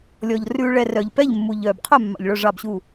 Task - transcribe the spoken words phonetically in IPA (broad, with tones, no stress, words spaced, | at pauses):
lʲɔ˩ʎ rʉː˩ɭɛ˩ rœ˩ʎ pɛ˧˩ʎ mːu˩ʎœː˩b qʰœ˧˩ mːɑ̰˩ʎɭœ˧˩ʐɑ˧˩bɕu˧˩